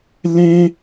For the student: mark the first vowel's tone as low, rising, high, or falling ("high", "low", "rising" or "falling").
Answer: high